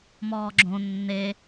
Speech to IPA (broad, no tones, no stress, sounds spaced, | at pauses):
m ɔː ɡ͡ǁ õ nː e